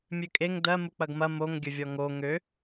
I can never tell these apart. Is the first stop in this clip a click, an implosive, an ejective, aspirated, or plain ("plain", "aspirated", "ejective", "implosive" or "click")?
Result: ejective